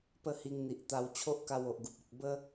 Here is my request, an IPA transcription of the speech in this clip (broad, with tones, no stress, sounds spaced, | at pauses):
p ə˥˧ h i˧ ŋ n̪ i˨ ʔ t̪ a˧ w t͡ɕʰ o˦ ʔ k a˧ w o˨ ʔ ɡ u˨ p̚ ɔ˨ k̚ b ə˦